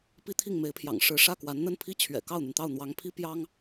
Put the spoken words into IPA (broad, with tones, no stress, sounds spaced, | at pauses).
p i˥ t̪ʰ i˥˩ ŋ m e˧˥ ɪ̯ pʰ j ɑ̰˨˩ ŋ ʂ ɻ̩˧˥ ʂ ä˥˩ k w a˧˥ n n̪ ə˥˩ n pʰ i˥ t͡ɕʰ ɥ ɛ̰˨˩ k ɑ˥˩ ʊ̯ n̪ y˩ n t̪ ɑ˥˩ ʊ̯ n̪ w ɑ˧˥ ŋ pʰ i˥ p j ɑ˥ ŋ